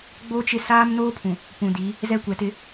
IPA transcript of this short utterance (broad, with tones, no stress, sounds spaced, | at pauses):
ɡ͡b o˦ t͡ʃ ɪ˦ s aː˦ m n oː˦ pʰ ũ˨ | p ũ˨ d i˨˦ | z ɛ˦ kʷ ɛ˨ t ɪ˦